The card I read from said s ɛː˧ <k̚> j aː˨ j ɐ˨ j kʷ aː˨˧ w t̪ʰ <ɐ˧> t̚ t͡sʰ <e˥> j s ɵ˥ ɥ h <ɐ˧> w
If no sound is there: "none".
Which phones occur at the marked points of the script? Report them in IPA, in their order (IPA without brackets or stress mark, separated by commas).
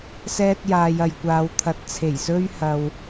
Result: t̚, ɐ˨, e˨˩, ɐ˧